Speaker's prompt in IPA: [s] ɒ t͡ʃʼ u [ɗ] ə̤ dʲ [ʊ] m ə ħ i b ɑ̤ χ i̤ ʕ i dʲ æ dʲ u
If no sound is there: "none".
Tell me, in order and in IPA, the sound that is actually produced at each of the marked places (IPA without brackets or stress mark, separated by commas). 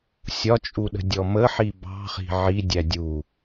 sʲ, ɗ, ɔ